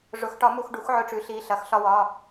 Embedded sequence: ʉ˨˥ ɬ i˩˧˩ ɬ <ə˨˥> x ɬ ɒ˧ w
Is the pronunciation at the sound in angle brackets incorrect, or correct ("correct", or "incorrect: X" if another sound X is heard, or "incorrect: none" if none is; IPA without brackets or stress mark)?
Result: incorrect: ɐ˨˥